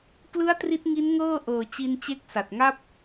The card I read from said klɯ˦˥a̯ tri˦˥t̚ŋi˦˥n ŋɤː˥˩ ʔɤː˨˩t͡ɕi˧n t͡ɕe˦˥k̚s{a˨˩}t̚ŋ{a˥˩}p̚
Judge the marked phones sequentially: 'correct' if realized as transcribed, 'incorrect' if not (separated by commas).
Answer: correct, correct